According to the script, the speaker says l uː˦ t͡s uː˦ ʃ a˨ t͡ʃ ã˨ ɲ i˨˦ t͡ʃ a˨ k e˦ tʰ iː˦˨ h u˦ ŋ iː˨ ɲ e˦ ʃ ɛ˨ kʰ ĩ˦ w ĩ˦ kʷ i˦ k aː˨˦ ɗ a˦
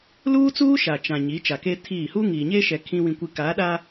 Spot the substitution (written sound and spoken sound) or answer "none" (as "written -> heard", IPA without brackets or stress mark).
none